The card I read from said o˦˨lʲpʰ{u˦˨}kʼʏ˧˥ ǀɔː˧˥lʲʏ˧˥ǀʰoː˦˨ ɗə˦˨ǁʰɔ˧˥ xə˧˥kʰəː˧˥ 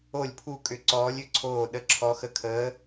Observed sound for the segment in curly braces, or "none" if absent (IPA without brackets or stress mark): u˦˨